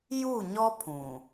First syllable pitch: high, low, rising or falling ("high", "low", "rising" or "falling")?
falling